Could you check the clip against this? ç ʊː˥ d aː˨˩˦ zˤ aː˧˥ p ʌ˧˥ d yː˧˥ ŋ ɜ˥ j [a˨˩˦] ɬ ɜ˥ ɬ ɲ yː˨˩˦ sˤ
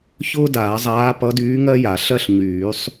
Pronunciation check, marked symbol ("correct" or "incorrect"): correct